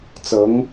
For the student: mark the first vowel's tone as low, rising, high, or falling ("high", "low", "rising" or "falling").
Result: rising